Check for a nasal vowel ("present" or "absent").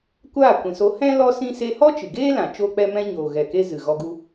present